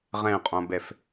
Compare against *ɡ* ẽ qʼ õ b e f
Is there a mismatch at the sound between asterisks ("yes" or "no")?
yes